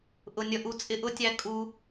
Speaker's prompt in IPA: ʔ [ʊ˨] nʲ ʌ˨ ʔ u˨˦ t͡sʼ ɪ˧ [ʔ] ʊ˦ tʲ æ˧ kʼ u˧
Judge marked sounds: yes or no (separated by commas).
yes, yes